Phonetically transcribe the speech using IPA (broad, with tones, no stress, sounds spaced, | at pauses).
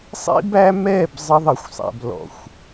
sˤ ḭ˦ b æ˦ m ɛ˦˨ b zˤ ə˧ ðˤ ə˨ xʷ sˤ æ̰˨ b l ɔ̰˨ xʷ